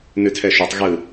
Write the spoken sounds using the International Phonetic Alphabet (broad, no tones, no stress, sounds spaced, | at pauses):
n ʉ tʰ ɛ ʃ ø tˤ ɣ ɯ